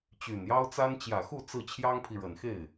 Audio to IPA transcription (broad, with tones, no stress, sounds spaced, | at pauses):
t͡ɕ y˨˩ n j ɑ˥ ʊ̯ t͡s a˥ n t͡ɕ j ä˨˩ x u˥˧ t͡s ɹ̩˥˩ t͡ɕʰ j ɑ˥ ŋ pʰ i˨ ɻ ə˨˩ n x e˥˩ ɪ̯